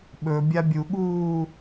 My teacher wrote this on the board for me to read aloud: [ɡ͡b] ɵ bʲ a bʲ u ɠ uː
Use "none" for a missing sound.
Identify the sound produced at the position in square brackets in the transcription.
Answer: ɓ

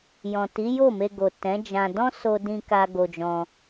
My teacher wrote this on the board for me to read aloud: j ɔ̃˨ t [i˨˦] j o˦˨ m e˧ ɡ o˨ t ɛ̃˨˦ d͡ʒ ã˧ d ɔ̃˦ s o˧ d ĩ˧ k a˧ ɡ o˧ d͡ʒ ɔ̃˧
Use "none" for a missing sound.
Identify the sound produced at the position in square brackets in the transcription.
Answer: i˨˦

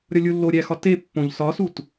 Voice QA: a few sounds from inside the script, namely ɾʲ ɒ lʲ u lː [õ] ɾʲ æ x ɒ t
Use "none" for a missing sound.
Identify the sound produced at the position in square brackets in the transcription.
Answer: o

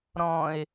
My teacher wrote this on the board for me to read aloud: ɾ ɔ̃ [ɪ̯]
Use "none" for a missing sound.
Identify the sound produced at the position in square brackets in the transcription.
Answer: ɪ̯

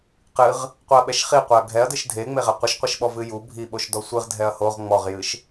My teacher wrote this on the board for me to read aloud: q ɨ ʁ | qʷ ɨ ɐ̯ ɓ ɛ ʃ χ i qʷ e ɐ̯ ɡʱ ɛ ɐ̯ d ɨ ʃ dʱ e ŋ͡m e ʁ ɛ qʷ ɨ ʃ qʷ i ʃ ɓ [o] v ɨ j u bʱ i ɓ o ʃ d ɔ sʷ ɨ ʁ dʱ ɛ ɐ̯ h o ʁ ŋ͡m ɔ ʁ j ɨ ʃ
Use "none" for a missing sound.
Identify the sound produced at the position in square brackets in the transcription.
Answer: ɔ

